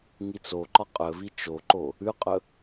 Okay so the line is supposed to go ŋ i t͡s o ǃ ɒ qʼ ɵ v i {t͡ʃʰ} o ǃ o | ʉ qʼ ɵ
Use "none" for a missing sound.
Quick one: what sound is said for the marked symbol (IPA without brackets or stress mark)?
t͡ʃ